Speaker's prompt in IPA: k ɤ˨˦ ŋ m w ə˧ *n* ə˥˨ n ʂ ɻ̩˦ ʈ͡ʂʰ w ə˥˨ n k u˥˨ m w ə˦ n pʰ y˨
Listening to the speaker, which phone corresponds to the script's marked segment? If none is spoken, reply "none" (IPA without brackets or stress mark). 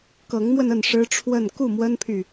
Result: n